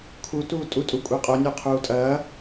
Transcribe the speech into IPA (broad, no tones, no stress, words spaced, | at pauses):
kʰu tuːtʼu tʼukʷʼeqʼo nʲə˞qʰuːtʼɐː